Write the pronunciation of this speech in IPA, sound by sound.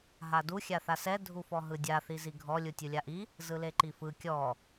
ɦ a d u xʲ a θ a s ɛ dʱ u f ɔ ɦ ɯ dʲ a θ i z i ɡʱ ɔ lʲ u tʲ u lʲ a ʔ i | z ɯ l e ǃ i f ɯ kʲ ɔ

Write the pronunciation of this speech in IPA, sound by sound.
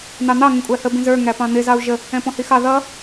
n̪ ɑ n̪ ɑ ŋ ə̃ kʷʼ æ h ə b ĩ z ə˞ ŋ æ p ɑ̃ n̪ ɪ z ɑ u̯ ʒ ə | ɛ̃ p ɔ̃ h i x ɑ ð ʌ

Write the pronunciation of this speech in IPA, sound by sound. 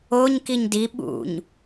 o ɲ k i ɲ d i ɓ ṵ ɲ

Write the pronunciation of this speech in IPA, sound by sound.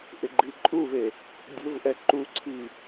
ʔ ɪ ɡ͡ǃ i ǃʼ u v e | dʲ ʊ v ʔ ɛ ǃ u ǀʰ i

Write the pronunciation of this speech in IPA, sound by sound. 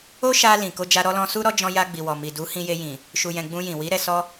o˦ ʃ a˧ l ĩ˨ k o˧ d͡ʒ a˧ ɾ ɔ˧ l ɔ̃˧ s u˧ ɾ ɔ˦ d͡ʒ ɔ̃˧ j a˧ ɡ͡b i˨ w ɔ˨ m i˨ d u˨˦ h ĩ˧ j e˧ j ĩ˨ | ʃ u˨ j ɛ̃˨ ɡ͡b ũ˧ j ĩ˨ w i˨˦ ɾ ɛ˧ s ɔ˧

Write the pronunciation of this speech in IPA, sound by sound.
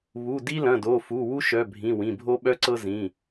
β u˩˧˩ d i˥ l ɐ̃˩˧˩ d o˩˧˩ f u˩˧˩ w u˥ ʃ œ˩˧˩ bʱ ĩ˩˧˩ w ĩ˩˧˩ bʱ o˥ ɓ œ˥ ǀ ɤ˥ z ĩ˩˧˩

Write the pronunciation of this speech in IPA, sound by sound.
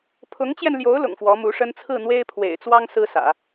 pʰ ʊ˧˥ ŋ t͡ɕ j ɛ˧ n l j o˧˥ ʊ̯ l ʊ̰˨˩ ŋ f w ɔ˧˥ m u˧˥ ʂ ə˥ n t͡sʰ ɹ̩˥˩ n̪ w e˥ ɪ̯ pʰ w ḛ˨˩ ɪ̯ t͡s w ɑ˥ ŋ s ɹ̩˥ s ä̰˨˩˦

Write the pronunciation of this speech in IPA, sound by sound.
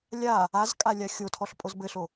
lʲ a | a z kʼ a lʲ a xʲ o tʰ ɔ ɬ pʼ o z b ɘ ɬ o

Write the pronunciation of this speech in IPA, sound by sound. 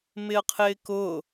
m ɪ ə̯ qʰ ɪː k ʊ

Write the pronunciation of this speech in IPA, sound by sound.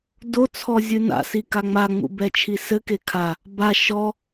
d o t͡sʰ ɔ zʲ ɨ n a̰ s i k a ŋ͡m a ŋ͡m ṵ b ɛ t͡ʃʰ i s ɘ k e kʰ a | b a ʃ ɔ

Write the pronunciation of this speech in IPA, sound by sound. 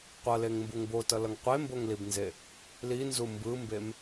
qʷ ʌ l e ŋ m b u ŋ b o t ʌ l ʌ ŋ qʷ e m b o ŋ l i b n z e | l i n z u m b ɯ m b e m

